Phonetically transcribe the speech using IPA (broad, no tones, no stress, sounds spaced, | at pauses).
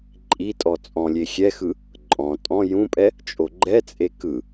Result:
ǃʼ i tʼ ɔ t͡sʼ ɔ̃ lʲ e xʲ ɛ x ɯ | ǃʼ ɔ̃ tʼ ɔ̃ j ũ pʼ ɛ | t͡ʃʼ o ɡ͡ǃ ɛ t͡sʼ e k ɯ